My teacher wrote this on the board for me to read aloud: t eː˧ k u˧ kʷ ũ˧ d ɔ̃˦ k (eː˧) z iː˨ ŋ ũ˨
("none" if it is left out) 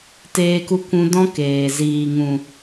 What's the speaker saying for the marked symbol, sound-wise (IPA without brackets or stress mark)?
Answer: eː˨